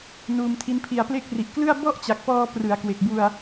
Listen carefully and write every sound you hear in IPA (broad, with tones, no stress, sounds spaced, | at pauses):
n uː˧ m tʰ i˦˥ n pʰ i˧ a̯ p l e˦˥ k̚ r i˨˩ ʔ k l ɯ˥˩ a̯ b ɔ˥˩ ʔ t͡ɕ a˨˩ k̚ p ɔː˧ p r ɯ˩˦ a̯ k w e˨˩ k̚ b u˧ a̯